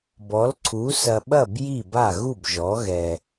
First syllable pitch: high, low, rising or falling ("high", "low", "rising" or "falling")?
rising